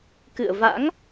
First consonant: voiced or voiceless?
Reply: voiceless